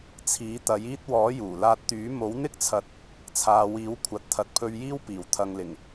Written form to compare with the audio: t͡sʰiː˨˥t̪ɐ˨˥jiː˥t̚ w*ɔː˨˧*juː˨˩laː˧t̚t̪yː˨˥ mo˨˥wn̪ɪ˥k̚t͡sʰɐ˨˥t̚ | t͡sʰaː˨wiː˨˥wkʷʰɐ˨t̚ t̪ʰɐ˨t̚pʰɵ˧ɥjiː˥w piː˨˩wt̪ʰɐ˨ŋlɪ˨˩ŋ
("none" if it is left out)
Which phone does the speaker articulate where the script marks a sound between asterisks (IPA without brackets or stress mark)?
ɔː˨˥